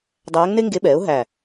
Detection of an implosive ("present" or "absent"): present